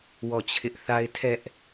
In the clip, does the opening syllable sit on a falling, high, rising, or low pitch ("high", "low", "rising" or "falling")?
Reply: falling